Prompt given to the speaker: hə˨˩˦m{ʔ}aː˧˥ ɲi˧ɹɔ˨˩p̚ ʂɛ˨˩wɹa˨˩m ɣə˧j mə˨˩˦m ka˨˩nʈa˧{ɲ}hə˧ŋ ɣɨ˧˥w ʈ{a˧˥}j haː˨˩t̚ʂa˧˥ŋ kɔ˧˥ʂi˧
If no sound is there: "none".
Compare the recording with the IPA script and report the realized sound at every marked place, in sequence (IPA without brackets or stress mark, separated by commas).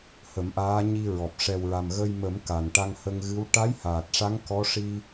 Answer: ʔ, ŋ, a˧˥